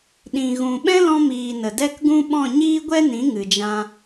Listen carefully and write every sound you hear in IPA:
ɗĩ˨ ɣũ˨ɓɛ̃˦lɔ̃˧miː˨ nə˨dɛ˦kɡũ˦ ɓɔ̃˦˨ɲiː˦ɡʷɛ˦nĩ˨˦ ŋɨ˨ d͡ʒã˧

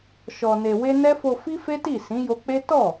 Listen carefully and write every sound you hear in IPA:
ʃɔ˧ne˧ we˦ nɛ˦fo˧ fi˦fe˦ti˦˨ sĩ˨˦jo˧k͡pe˦ tɔ˦˨

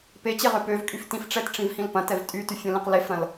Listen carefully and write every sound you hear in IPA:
pet͡ɕeʁø pøvkʼyf tĩfʈ͡ʂɛtʈ͡ʂĩvhĩl pɐ̃tɛv tʼytyfʲɐ̃lĩq lefɾɐ̃l

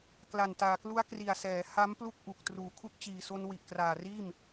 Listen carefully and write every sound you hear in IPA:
kla˨˩ntaː˨˩klu˦˥a̯ kri˨˩a̯sɛː˩˦ ha˦˥m plu˥˩k̚ʔu˨˩k̚truː˨˩ kʰu˦˥k̚t͡ɕiː˨˩so˧n wi˨˩ʔkraː˨˩riː˥˩m

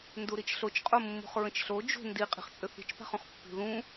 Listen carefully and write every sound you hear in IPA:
nduɾit͡ʃɬot͡ʃ qʼomːṳχɹə̃t͡ʃɬo d͡ʒṳ ndi qʼi̤χt͡sʼʏθi̤t͡ʃ pa̤χũχpːi̤ ðũ

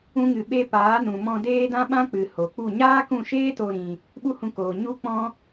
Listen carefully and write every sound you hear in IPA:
ũ˦ŋɨ˧ɓe˦ paː˨˦nũ˨mɔ̃˧ deː˦dã˦ɓã˦k͡pɨ˨ ho˨k͡pu˦˨ ɲaː˦kũ˦˨ʃeː˦to˧ ɾĩ˧ | ɓu˦hũ˧koː˨ ɲu˦k͡pɔ̃˦

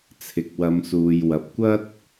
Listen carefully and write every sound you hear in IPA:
t͡sʰɪ˨k̚wɐ˨˧msuː˨jwɐ˨p̚ kʷɐ˥t̚

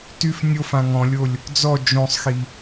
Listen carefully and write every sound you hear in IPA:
tyf nʲofã ŋɔ̃lʲolʲ | d͡zɔ d͡ʒõsˤxi

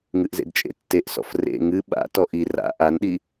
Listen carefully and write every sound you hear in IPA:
ŋɨʔzḛdt͡ʃʼḛ tːeʔsɔ̰f rḛ ŋɨ ɓa̰ tɔʔi ra̰ ʔanɗi

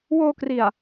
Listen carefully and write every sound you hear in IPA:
woː˧kri˨˩a̯

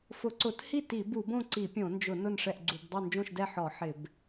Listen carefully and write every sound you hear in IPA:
fʊ˧˩˧ǀʊ˧˩˧thi˥˨ ti˧˩˧bu˧˩˧bõ˥˨ ǀi˧˩˧pʲõ˧˩˧nd͡ʒʊ˧˩˧ nʊ˥˨nʂɛ˥˨ʔɡ͡ǀu˧˩˧b dˤo˥˨nd͡ʒõ˥˨ʃdɛ˥˨ ħɔ˧˩˧ ħɪ˧˩˧b

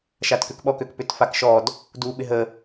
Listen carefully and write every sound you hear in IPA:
ʃatkʏkɓɔkøk pʏtfakʃɔd | duɓɪ ɦə

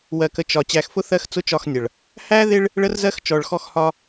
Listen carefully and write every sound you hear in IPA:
wɜ˨kə˨ t͡ʃɒ˨ t͡ɕæ˨xfʊ˦ θɜ˦xt͡sʊ˦t͡ʃɒ˦˨xnʲʌ˨ɭ | hæ˦ðɪ˦ɭ | ɭə˦rzɜ˦xt͡ʃɔ˨ɭxɔ˦x hɒ˦

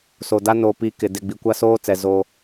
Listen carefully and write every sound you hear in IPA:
so˨da˦ no˨pi˨ kɪ˨ dɪ˦˨ ɡ͡bi˨kʷa˦soː˦t͡sɛ˨ zo˦

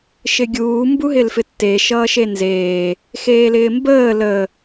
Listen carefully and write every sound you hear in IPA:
ʃɪɡʲuː mbuɦɪlfɪtːe ʃʌːʃenzeː | xeːlɪːmbəː lə

